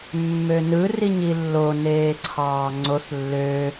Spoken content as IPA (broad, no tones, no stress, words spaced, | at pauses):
mːønɯ riɲilːo neːǀʰɑːŋ͡ǀoθ lːø